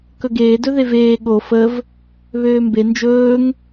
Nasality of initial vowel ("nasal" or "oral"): oral